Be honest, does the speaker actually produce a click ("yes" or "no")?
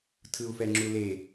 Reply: yes